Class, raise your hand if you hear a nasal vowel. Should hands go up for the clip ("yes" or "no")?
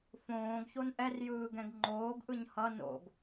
yes